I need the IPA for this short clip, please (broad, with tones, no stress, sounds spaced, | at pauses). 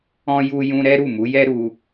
ɔ̃˦ j u˦ j ũ˦ ɾ ɛ˦ ɾ u˦˨ m u˨˦ j ɛ˦ ɾ u˦